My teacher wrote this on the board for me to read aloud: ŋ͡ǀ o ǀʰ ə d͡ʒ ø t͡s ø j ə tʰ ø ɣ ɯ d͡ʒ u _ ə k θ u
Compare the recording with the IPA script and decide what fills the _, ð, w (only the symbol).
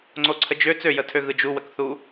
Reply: w